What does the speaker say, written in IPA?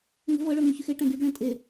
ŋ ə̤ v ɤ ɭ œ ŋ y ç y x e ʈ ɛ̃ ɡ y ɡ ɭ ẽ tʼ e

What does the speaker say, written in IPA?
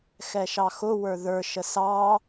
x ɛ ʃ ɑ x ʊ w ə˞ ð ə˞ ʃ ə s ɑ

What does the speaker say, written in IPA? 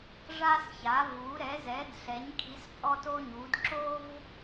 ʐ a˥ s ç a˨˥ v u˨˥ ɾ ɛ˨˥ z ɛ˨˥ d ɬ ɛ˨˥ ɲ kʰ i˨˥ s pʼ ɔ˥ t o˥ ɲ u˨˥ d ǁ o˥ v

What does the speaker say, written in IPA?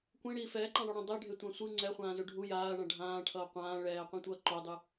kʷ ẽ ɽ iː f ɛː ǃ ã ðˤ o ɽ ẽ dˤ e ɖʱ e tʷ ã sʷ ɯ ŋ͡ǀ ɛ χʷ ãː z o ɖʱ u j aː ɳ ã ɖʱ ãː ʈʰ ʌː qʷ ãː ɭ ɛː qʷ ẽ tʷ ʌː ǃ o dˤ ɯ

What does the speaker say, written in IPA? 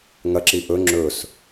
ŋ ɐ ǁ i ʔ ɵ ŋ͡ǁ ɵ s

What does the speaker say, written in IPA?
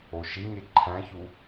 o ʃ i ɲ e ǃʰ æ̃ ç u

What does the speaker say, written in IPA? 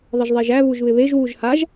ðˤ ɪ ʒ ðˤ e ʒ æ β u ʒ β ɪ β e ʒ w u ʒ h a ʒ

